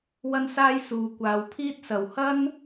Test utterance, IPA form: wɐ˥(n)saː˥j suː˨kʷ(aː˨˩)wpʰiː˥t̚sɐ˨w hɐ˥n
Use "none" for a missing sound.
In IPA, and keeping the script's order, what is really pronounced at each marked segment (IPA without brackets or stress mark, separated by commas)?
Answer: n, aː˨˧